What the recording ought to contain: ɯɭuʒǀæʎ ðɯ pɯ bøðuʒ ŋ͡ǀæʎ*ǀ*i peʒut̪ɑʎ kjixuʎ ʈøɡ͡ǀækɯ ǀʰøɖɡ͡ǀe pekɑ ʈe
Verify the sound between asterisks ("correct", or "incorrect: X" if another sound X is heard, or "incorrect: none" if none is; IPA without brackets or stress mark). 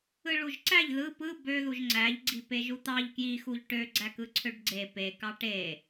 incorrect: ɡ͡ǀ